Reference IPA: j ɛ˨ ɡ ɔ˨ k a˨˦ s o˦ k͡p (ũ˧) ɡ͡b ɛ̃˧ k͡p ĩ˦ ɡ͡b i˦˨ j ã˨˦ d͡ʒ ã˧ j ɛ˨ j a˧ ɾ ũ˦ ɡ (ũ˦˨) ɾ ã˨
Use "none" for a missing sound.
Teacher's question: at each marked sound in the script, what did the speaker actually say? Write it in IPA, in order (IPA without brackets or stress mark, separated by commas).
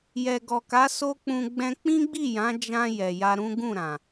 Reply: ũ˧, ũ˦˨